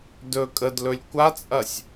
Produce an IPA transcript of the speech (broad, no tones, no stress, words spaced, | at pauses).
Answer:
dɵ kʼədlɵlʲ kʷat͡sʼɐsʲ